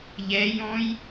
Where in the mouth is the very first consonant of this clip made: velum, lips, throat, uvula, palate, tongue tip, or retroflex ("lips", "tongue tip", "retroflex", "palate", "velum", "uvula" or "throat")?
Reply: palate